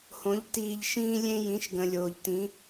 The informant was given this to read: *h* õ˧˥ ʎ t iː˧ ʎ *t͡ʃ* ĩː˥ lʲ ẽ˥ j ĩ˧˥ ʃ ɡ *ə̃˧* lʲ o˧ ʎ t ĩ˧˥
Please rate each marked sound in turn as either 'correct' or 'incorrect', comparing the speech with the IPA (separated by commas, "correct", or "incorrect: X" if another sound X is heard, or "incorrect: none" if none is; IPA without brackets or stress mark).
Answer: correct, incorrect: ʃ, correct